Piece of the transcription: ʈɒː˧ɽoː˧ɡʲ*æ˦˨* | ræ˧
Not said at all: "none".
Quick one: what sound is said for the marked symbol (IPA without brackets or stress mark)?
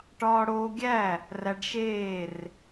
æ˦˨